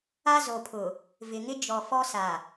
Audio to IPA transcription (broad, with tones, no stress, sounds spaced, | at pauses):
a˦ z o˨ pʰ ʊ˨ | v ɪ˨ ŋ ɪ˦ d͡ʒ ɔ˨ f ɔ˦ s a˨